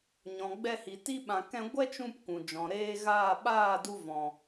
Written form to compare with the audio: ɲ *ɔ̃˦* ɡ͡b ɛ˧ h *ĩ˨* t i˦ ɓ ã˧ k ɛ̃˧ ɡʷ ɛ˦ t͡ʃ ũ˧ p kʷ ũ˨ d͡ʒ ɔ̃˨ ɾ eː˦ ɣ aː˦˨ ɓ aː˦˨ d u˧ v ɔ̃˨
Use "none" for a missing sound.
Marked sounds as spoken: ɔ̃˨, i˨

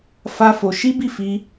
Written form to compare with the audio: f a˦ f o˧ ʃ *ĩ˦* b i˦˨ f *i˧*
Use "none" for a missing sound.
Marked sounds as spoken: i˦, i˧

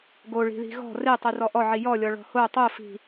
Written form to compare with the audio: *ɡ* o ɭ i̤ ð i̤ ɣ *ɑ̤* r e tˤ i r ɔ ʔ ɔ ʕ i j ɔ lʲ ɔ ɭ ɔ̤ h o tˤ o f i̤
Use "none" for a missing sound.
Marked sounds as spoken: ɡ, ɔ̤

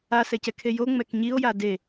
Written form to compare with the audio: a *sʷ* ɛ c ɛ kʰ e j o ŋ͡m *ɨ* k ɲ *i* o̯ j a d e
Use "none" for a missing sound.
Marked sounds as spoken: s, ɛ, i

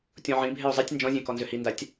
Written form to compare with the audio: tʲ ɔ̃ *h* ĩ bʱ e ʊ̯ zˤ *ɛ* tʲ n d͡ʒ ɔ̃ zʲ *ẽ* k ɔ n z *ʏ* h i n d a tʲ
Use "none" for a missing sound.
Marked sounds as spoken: ʕ, ɛ, ẽ, ʏ

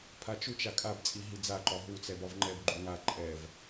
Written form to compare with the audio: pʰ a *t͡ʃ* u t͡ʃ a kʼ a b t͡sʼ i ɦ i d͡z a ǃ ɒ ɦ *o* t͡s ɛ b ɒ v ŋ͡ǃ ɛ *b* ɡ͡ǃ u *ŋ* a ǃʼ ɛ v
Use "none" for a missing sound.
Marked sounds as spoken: t͡ʃ, u, b, ŋ

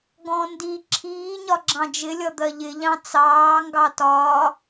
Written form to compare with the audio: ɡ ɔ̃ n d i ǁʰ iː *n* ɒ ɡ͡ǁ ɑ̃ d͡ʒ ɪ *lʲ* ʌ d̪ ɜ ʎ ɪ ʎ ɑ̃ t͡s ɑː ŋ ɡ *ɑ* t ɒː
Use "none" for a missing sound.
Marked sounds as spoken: ɲ, lʲ, ɑ

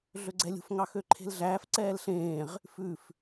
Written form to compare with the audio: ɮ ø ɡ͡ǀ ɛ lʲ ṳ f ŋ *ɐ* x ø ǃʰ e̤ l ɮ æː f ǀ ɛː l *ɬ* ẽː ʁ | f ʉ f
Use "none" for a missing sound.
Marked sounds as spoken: ɑ, ɬ

